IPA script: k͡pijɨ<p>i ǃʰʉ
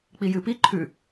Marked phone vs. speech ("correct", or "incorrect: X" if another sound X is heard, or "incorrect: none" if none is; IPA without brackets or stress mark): correct